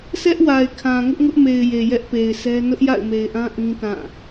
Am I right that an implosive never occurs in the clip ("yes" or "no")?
yes